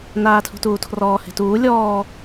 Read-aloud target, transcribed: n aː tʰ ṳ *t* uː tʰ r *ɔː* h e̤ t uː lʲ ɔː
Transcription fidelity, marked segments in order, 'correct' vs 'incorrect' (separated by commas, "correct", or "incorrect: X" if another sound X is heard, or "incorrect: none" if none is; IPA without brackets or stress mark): correct, correct